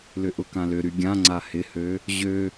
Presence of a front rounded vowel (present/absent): present